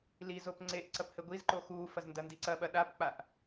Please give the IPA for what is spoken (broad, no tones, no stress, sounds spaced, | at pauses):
l i z o p ŋ͡ǀ e ʔ ǀ ɐ p h ɘ ɡʷ i z ǃ o x uː f ɐ z n d ɐ n d i ǀ ɐ ɓ ɐ ɗ a p k͡p a ʔ